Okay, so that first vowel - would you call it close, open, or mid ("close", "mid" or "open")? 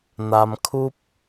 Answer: open